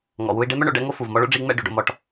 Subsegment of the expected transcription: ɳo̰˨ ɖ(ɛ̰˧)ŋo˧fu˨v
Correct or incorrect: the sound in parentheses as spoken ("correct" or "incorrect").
correct